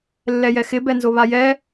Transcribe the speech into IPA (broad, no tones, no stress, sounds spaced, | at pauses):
lː ɛ j ɛ x ɪ b ɛ n z o β a j ɛ